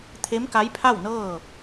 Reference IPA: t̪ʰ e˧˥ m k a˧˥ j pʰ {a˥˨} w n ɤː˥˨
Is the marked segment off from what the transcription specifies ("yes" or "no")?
no